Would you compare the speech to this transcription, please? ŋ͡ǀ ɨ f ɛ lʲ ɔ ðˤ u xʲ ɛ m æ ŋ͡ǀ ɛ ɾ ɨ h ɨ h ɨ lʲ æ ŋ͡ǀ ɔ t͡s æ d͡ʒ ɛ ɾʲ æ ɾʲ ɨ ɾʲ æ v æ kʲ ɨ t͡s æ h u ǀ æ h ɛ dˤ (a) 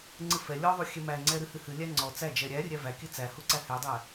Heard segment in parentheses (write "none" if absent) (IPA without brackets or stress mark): æ